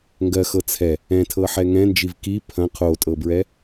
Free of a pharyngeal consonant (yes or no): no